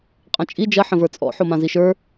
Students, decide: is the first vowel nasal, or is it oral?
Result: nasal